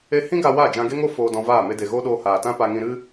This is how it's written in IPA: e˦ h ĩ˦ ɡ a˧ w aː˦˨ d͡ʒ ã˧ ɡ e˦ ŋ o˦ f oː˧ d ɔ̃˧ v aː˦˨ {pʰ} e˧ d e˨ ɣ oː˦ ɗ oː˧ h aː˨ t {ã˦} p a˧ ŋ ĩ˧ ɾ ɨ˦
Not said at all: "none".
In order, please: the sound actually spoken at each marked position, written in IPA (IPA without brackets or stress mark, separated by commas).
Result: m, ã˦